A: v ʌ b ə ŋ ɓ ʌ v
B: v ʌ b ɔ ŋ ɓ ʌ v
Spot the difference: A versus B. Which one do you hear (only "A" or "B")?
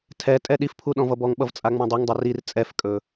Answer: B